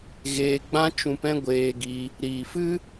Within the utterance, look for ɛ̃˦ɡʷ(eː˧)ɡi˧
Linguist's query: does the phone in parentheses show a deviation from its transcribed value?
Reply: no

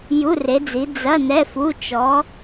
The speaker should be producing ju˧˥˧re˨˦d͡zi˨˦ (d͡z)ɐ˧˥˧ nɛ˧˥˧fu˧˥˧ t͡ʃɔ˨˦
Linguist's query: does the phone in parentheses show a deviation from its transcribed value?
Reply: no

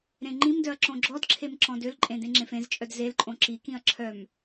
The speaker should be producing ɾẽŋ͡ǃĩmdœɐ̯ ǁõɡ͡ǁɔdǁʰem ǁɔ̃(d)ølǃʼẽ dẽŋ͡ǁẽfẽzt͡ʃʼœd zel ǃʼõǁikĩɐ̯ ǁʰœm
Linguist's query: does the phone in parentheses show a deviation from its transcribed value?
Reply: no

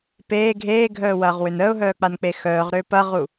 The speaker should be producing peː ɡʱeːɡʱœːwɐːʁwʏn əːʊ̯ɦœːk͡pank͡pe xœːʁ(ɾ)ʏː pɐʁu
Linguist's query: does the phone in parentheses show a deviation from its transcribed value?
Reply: no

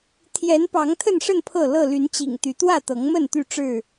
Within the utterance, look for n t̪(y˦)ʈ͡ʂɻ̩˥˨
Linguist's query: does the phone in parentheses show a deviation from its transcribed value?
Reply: yes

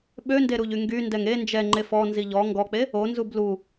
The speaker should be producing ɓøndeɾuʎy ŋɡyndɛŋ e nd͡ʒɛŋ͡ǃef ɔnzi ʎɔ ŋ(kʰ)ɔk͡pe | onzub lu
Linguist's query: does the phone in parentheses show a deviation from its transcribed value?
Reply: yes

